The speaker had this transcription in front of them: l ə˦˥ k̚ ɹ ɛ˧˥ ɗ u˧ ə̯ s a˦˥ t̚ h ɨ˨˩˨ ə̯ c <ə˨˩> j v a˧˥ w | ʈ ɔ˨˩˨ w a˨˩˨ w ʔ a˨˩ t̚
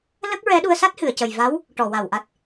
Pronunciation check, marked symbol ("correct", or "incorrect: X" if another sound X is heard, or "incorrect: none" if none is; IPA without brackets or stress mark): correct